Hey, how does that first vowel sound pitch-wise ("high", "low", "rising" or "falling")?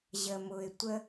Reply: low